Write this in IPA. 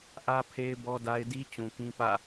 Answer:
ʔ ä˦ pʰ e˦ ɪ̯ b ɔ˦ d a˦ ɪ̯ d i˦ t͡ɕ ũ˨ k ĩ˦ p ä̰˦˨

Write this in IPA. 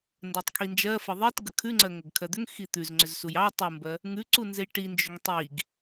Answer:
n d ɜ tˤ kʰ i n d͡ʒ ɜ f ə ðˤ i t ɡ ə kʰ ʉ ŋ͡ǀ ɜ ŋ ə ɡ kʰ ɜ d̪ ʏ ŋ x i t̪ ʉ z ŋ͡ǀ ʏ z s u j ɑ tˤ u m b ɜ | ŋ ʉ ǀ u n z e j ʈ i n d͡ʒ ʏ ŋ tˤ i ɡ

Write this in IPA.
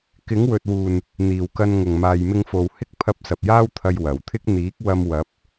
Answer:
k ɪ˨˥ ŋ w ɵ˨ t̚ w uː˨˩ n | n̪ iː˨˩ w k ɐ˧ n ŋ ʊ˨˩ ŋ m aː˨ j m ɪ˧ ŋ f o˨ w h ɪ˥ k̚ pʰ ɐ˧ p̚ s ɐ˨ p̚ j aː˥ w t̪ʰ ɐ˧ j w ɐ˨˩ w t̪ʰ ɪ˥ k̚ n̪ iː˨˥ k̚ w ɐ˧ m w ɐ˨˥ p̚

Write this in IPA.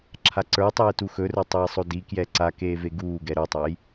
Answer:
ǁʰ a ǀ ə˞ tˤ eː t u x ɵ r ə˞ tˤ e j sˤ o d i k j ɛ ǀ a k eː v e ɡ uː ɡ ɛ ɾ ə˞ tˤ a j

